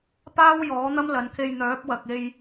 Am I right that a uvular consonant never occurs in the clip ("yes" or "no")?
yes